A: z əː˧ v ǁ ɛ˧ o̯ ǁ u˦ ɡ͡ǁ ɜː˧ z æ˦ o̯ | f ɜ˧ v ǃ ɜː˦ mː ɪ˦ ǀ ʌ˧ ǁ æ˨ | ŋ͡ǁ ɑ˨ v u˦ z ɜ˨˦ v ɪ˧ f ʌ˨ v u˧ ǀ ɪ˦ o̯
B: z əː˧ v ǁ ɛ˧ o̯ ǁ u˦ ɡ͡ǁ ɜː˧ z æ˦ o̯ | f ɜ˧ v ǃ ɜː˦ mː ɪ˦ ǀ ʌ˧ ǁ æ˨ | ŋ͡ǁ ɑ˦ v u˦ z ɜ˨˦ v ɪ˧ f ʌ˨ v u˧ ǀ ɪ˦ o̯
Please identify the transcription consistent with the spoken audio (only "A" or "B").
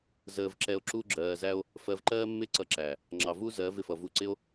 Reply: A